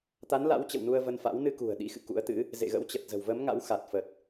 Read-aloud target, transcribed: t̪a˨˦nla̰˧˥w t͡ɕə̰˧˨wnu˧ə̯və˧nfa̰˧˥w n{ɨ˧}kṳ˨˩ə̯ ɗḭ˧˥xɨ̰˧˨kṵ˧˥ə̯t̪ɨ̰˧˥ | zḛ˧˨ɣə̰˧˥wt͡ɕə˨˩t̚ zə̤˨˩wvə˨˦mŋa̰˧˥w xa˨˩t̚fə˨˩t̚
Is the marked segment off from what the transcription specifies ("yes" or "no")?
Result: no